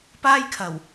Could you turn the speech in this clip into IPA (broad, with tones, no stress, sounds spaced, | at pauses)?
p aː˥ j kʰ ɐ˨˩ w